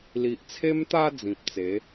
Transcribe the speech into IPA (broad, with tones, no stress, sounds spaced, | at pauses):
l i˨ ʔ t͡sʰ e˧ m t̪ a˧ d͡z ĩ˨ p̚ t͡s e˨˦